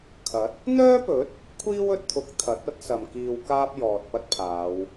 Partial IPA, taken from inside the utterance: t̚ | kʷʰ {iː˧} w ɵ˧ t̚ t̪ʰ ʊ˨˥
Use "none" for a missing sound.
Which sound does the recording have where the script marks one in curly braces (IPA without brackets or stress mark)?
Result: iː˥